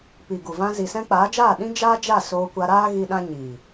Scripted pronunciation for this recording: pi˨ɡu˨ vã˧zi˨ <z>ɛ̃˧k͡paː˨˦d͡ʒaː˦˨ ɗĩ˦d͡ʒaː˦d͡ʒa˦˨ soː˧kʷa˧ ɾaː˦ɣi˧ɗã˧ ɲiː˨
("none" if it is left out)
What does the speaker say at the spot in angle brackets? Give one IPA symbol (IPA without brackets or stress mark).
s